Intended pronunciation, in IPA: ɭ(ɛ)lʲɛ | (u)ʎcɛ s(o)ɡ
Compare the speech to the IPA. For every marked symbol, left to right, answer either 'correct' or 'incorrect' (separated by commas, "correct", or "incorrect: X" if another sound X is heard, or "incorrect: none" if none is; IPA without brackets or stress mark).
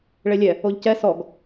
incorrect: e, incorrect: o, incorrect: ɔ